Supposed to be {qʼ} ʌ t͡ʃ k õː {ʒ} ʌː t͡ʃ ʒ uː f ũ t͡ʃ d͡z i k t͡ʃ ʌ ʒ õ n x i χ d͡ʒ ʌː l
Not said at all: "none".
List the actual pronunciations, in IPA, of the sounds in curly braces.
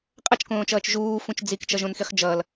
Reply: qʼ, t͡ʃ

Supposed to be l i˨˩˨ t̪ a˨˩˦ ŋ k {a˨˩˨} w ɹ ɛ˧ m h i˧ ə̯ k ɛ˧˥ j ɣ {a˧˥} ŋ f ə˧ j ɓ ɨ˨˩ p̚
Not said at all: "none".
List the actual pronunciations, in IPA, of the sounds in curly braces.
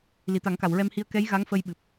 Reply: a˨˩˨, a˧˥

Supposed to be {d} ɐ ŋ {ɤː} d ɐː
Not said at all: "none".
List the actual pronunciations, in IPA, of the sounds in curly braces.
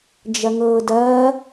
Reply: d͡ʒ, ɤː

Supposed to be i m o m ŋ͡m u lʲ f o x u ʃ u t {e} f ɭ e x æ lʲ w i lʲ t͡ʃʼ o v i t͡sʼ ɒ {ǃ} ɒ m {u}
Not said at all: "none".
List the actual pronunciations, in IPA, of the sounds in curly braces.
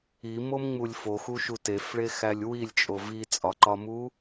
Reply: e, ǃ, u

